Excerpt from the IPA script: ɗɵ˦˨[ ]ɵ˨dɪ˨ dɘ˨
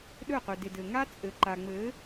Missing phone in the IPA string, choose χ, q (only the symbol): q